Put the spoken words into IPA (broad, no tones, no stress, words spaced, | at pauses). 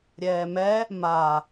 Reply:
ɾʲɛːmɛ | ma